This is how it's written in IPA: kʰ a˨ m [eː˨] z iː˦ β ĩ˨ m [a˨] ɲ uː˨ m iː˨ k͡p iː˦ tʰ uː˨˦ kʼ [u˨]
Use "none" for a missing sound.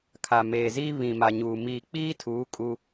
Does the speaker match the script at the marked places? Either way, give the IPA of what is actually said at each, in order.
eː˨, a˨, u˦

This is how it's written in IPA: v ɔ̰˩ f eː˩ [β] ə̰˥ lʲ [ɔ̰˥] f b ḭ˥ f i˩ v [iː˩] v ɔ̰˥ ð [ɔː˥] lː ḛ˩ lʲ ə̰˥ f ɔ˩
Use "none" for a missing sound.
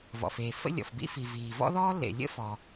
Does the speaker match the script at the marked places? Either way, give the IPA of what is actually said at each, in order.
f, ɔ̰˩, iː˩, ɔː˥

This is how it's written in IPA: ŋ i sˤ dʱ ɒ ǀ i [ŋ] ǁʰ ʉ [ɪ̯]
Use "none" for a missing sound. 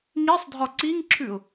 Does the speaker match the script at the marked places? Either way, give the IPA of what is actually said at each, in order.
ŋ, ʊ̯

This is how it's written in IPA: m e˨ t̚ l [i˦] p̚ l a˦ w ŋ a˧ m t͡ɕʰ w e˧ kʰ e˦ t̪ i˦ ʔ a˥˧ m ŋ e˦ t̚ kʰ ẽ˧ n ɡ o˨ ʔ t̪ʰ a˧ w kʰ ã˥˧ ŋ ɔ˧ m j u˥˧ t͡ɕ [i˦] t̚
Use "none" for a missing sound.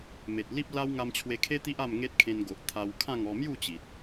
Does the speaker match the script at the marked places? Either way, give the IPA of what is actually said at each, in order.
i˦, i˨

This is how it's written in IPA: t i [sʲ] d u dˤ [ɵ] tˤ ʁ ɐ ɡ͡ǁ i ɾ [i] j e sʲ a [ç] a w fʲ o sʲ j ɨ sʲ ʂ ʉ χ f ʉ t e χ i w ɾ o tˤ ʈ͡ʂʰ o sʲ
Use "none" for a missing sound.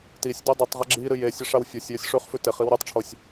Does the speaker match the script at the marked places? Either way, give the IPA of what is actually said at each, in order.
sʲ, ɵ, ɨ, ʂ

